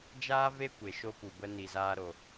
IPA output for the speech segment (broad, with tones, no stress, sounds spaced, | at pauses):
d͡ʒ aː˦ v e˦ kʷ e˨ ʃ o˦ p u˨ b ə˦ n i˨ z aː˧ ɾ o˨